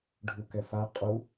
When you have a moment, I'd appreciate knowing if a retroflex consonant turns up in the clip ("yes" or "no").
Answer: yes